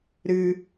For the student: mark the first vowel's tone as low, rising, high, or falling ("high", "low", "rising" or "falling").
high